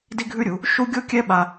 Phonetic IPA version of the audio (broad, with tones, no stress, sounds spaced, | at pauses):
d i˦ ɡʱ ʉ˦ ɾʲ u˨˦ | ʃ u˦ ɡʲ o˦ kʲ ɛ˦ ɓ a˧